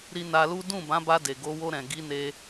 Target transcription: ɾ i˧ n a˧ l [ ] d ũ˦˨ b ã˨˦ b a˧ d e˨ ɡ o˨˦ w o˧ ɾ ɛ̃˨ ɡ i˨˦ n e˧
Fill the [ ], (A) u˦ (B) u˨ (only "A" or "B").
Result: A